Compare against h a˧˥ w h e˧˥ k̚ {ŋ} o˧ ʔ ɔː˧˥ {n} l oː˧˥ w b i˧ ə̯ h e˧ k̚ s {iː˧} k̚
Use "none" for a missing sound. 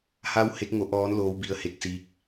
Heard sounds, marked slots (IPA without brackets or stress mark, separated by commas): ŋ, n, iː˧